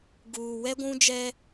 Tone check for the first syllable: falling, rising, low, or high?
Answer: low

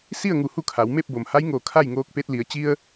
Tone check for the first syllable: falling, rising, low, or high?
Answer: falling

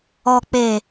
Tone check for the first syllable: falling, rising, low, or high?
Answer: low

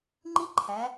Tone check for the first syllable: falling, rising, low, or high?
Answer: high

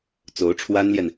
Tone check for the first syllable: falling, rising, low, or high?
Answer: rising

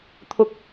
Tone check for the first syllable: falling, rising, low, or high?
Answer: high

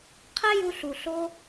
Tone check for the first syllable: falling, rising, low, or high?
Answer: high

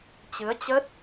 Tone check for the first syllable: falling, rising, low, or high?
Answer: rising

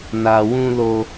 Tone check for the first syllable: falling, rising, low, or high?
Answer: low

